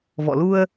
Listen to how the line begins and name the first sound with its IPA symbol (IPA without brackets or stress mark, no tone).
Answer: v